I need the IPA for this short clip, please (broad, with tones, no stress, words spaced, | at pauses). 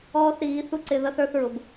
ɔː˦θɾiː˨˦ θu˦ǀɪ˧ ðʌ˦θə˞˦θɹʊ˨b